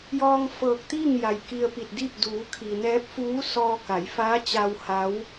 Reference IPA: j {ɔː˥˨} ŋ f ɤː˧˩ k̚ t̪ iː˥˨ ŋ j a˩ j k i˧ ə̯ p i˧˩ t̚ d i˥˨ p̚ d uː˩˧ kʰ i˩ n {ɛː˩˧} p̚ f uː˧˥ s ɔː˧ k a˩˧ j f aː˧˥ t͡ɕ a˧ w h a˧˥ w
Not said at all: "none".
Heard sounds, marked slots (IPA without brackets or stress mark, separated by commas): ɔː˧, ɛː˧˥